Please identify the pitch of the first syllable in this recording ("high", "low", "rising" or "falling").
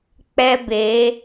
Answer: high